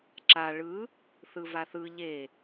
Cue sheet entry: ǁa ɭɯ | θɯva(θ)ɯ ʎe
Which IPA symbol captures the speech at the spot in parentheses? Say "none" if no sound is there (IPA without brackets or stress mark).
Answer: θ